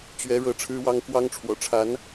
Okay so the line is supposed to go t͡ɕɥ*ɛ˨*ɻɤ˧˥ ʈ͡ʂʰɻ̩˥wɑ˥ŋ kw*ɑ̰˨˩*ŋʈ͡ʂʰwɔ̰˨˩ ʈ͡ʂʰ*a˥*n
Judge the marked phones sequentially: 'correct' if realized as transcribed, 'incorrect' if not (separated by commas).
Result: incorrect, incorrect, incorrect